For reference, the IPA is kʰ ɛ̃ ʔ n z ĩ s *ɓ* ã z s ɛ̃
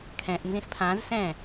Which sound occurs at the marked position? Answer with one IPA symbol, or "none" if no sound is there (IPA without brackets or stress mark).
pʰ